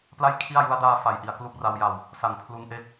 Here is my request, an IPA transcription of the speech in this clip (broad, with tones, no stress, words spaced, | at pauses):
pla˥˩jkʰi˥˩a̯ju˦˥a̯ daː˦˥fa˩˦j ʔi˩˦a̯klu˥˩k̚ra˦˥wja˧w | sa˨˩ŋ pʰlu˧nʔe˥˩k̚